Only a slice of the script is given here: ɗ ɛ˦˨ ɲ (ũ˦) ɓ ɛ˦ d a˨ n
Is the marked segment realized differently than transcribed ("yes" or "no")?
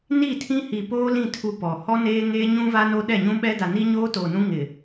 no